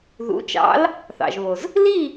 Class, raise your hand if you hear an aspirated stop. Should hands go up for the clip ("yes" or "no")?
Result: no